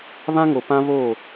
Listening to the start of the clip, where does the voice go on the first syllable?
high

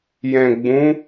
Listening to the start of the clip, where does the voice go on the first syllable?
low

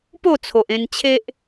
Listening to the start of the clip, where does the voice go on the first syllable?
falling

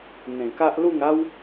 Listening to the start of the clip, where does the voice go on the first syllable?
low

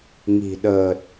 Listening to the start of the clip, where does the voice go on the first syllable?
low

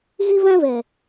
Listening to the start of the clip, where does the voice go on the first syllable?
high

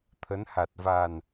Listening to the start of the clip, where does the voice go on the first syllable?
rising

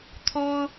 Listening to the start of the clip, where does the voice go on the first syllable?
high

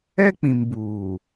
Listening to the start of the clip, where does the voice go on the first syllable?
high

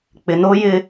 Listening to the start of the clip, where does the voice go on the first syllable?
low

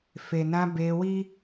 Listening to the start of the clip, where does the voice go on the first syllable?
low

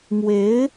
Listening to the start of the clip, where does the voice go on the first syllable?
rising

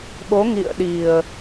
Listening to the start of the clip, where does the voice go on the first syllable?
rising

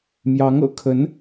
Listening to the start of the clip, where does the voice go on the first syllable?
rising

